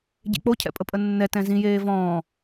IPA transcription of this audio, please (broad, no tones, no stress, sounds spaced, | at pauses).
ɟ ḛ k͡p o cʰ ɛ̰ pʼ ə pʼ ə nː ɛ t ɛ̃ z ĩ j eː v ɔ̃ː